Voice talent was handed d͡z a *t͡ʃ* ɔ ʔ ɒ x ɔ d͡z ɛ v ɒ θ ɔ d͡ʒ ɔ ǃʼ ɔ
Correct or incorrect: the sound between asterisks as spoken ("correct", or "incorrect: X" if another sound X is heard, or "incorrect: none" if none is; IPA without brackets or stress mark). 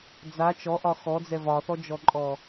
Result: correct